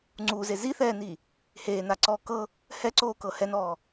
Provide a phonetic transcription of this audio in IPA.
ŋ͡ǀuze ziθɛːni | heːnaǀɔː kɤ | hɛǀoːkɤ hɛnɔː

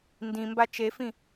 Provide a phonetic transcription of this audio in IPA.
ndĩmba t͡ʃefĩ

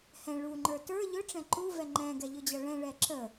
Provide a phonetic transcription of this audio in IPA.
hɛ̃ ɭuŋ͡ǃə˞ tə˞ ʎɵʈ͡ʂɛ̃ ǃuvɛ ŋ͡ǃɛ̃ɡɛ ʎɵd͡ʑʌɭɛ̃ɭɛ ǁə

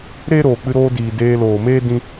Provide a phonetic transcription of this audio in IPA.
ɾeː˦ɾoː˨k͡pɨ˧ ɾoː˧diː˨ deː˧ loː˨meː˦ dĩ˦

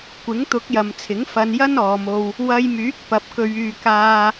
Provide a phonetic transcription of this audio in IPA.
kʷɪ˨˥ŋt̪ʊ˨˥k̚jɐ˨mt͡sʰɪ˨˥ŋ fɐ˧njɐ˥nɔː˨˧mo˧w | wɐ˧jmyː˨˥k̚pɐ˨p̚ kɵ˨ɥyː˨ kaː˧

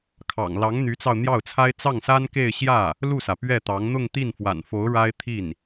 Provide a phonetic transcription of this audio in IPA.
kʰɑ̰˨˩ŋ lɑ˧˥ŋ n̪y˧˥t͡sɑ˧ʊ̯n̪jɑ˥˩ʊ̯t͡sʰa˥ɪ̯ t͡sɑ˥˩ŋsa˥nke˥˧ɪ̯ ɕjä˥˩ | lu˥˩sä˩ pɥɛ˥˩t̪ɑ˧˥ŋ n̪ʊ˥˧ŋt̪i˥˩nfwa̰˨˩nfo˧˥ʊ̯ ɻa˥ɪ̯t̪ʰi˥˩n

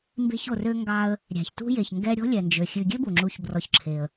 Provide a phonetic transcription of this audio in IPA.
mbe̤˨ço˩rø˨ŋɡɑ˨ə̯ | ɾʲæ̤˩çtṳ˦je˩ç ŋɡɛ˦ɾʲɔ̤˥lʲɛ˩nd͡ʒø˩ xʲʉ˨ɡʲø˥bu˩ŋ͡ǁu˨ç brɔ˨çǁʰe˩ə̯

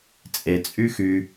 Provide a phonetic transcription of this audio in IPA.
t͡sʼet͡sʼy xy

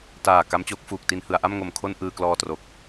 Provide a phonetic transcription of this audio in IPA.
taː˨˩ ka˦˥mt͡ɕoː˦˥k̚ fuː˨˩k̚ti˧n hɯ˩˦a̯ʔa˥˩mŋo˨˩mkʰo˥˩n ʔɯː˧klɔː˧tro˨˩k̚

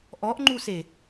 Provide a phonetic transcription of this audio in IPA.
ʔɔʔŋ͡ǃuse

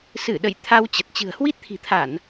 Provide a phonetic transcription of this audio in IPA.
sɨ˧˩ɗə̰˧˨j t̪ʰa˧wt͡ɕə˨˩t̚ t͡ɕɨ̤˨˩ə̯hwi˦˥t̚t̪ʰi̤˨˩t̪ʰa˧˩˨n

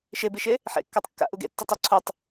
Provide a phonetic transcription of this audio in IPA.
ʃebiʃe | ħḛ kːatˤkːa̰ ʔuɡḛ tːutˤɘ ǀʰutˤ

